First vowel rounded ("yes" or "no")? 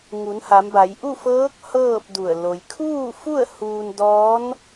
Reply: yes